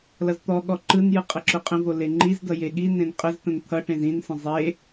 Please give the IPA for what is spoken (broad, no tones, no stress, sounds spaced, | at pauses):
l ʌ z t̪ ɔ ɠ ɔ ǃ ɯ n j ɯ qʼ ʌ ǁ ʊ qʼ ə̃ v o l e ŋ͡ǃ i z d ʌ j e ɠ i n ẽ n qʼ ə z t̪ ə̃ n t̪ʰ ʌ ʈ ẽ z ĩ n s ə̃ zˤ e